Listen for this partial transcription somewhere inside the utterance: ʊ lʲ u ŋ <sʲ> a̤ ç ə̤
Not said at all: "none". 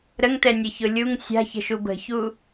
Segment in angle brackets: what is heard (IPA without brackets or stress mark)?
sʲ